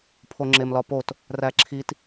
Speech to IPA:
pʰoŋ͡ǁemlɒpot | ræǁʰit

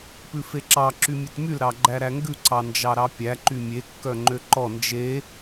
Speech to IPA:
pʉfeǁɑ ǁymʲʉtmyl ɾɑɡ͡ǃæɾæŋɡʉ ǀɑnd͡ʒɑɾɑpʲæ ǃymʲe kːœŋ͡ǃøǃɔ nd͡ʒe

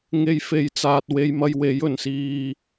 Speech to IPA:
ŋe˧jfe˨jt͡saː˨t̚ we˧jmɐ˧jwe˨˥j ɵ˨˩nsiː˨

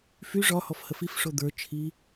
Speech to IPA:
fy ʐɒhɔf həfif ʂod̪ə˞ t͡ʃʰi

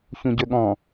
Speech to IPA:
çũɟɵɠɔ̃

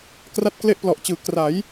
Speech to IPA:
kra˦˥t̚kle˦˥ʔplɔ˨˩ʔt͡ɕɯː˩˦ kra˩˦j

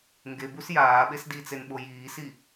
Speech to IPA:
ŋɡebus jaːɓes dit͡senɓo jiːsi

